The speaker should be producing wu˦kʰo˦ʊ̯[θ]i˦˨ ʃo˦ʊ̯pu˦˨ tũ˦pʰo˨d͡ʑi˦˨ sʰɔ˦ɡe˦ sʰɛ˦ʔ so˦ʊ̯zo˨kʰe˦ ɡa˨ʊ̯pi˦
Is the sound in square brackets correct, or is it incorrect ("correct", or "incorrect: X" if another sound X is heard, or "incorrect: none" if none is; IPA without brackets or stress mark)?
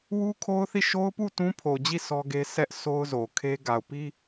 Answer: correct